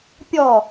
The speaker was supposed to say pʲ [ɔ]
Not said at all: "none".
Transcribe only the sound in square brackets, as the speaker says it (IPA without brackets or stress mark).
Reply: ɔ